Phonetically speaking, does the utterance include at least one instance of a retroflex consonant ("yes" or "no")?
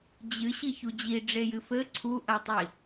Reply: yes